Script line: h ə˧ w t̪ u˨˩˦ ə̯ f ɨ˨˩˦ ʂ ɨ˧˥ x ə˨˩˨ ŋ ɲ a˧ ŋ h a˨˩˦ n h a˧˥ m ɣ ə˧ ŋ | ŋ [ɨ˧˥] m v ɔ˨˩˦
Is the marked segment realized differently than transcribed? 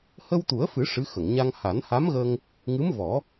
no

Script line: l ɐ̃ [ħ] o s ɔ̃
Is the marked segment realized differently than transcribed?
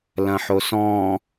no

